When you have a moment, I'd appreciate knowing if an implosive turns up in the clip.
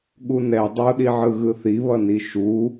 yes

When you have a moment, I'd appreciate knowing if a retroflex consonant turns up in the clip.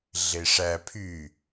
yes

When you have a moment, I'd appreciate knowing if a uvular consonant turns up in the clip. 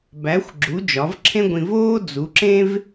no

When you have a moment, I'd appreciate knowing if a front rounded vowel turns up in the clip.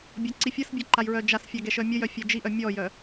yes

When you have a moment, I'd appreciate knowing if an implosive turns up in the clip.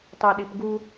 yes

